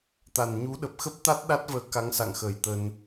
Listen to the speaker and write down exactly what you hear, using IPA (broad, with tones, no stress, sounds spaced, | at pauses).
t̪ a˨˩ n ɲ u˨˦ ɗ ə˨˩ p̚ x ə˦˥ p̚ t̪ a˦˥ t̚ ɗ a˦˥ t̚ v əː˨˦ k a˨˦ ŋ s a̰˧˨ ŋ x əː˧˩ j t̪ ə˧ n